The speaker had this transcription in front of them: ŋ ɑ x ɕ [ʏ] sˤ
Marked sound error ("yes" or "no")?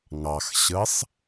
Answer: yes